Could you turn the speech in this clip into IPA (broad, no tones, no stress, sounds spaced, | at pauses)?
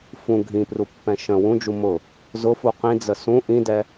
f ũ ɡʱ ĩ p r u pː ɛ̃ ʃ ə̃ w ũ d͡ʒ u m ʊ | z ʊ f u q ĩ d͡z ə s ũ ʔ ĩ d ɛ